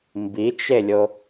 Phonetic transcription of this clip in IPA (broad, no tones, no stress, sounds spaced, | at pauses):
m b i t͡ʃ e lʲ o